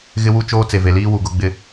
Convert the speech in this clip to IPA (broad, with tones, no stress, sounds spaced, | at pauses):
ɣ ɪ˦ w u˦ t͡ʃ oː˦ t͡s e˨ v e˨ l iː˦ w u˨ ɡ ʊ˦ ɡ͡b ɪ˦